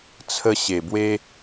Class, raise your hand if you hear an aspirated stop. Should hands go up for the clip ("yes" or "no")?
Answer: yes